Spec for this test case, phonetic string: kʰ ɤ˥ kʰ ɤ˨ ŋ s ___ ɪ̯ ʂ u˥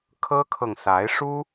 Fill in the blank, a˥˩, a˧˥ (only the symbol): a˧˥